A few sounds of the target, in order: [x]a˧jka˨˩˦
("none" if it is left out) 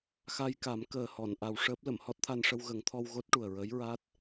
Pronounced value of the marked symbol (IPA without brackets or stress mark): x